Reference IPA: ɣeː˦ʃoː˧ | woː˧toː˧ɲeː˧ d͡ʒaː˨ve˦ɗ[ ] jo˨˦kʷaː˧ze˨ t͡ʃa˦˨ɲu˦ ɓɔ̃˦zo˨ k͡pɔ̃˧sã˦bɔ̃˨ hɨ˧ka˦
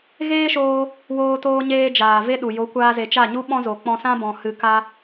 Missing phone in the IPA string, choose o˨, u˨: u˨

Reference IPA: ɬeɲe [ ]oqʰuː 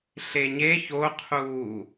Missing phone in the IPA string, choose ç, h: ç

